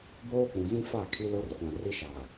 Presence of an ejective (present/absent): absent